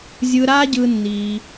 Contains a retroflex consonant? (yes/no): no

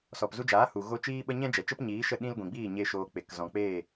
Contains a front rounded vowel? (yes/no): no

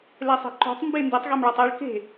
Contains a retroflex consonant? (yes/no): yes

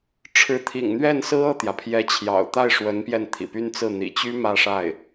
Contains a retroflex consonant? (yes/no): yes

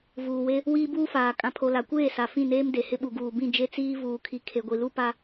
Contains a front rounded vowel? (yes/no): no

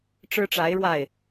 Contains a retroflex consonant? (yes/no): yes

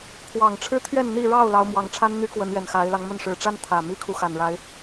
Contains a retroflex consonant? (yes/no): yes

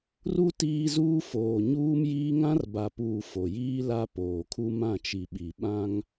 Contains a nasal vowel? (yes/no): yes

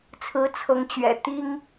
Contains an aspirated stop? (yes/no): yes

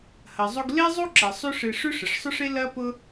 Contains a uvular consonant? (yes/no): no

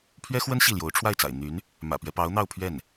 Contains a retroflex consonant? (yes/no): yes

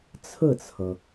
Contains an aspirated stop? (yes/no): yes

